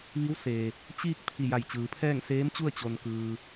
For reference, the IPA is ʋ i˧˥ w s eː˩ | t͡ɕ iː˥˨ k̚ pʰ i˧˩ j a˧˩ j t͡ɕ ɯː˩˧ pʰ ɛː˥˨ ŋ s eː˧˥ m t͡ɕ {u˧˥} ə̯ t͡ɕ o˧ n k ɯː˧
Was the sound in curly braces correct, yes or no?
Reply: no